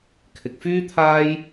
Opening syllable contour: low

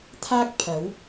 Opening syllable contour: high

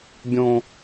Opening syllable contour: high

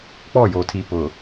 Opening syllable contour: falling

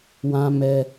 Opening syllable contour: high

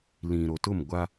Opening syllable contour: low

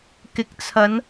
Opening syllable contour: low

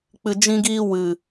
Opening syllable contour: low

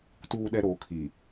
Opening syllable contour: low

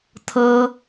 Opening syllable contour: high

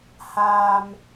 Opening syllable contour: low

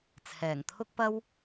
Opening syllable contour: low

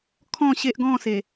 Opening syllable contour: falling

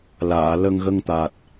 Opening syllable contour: low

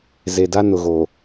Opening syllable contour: low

